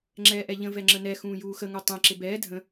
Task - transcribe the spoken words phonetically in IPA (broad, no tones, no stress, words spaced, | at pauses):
ŋ͡ǁɛːʔɛʎə̃ vɛŋ͡ǁənɛ xũːjuːxə ŋutˤɛ̃ ǁɪbɛː dʱə̃